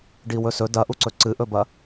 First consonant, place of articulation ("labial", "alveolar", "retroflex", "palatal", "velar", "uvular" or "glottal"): retroflex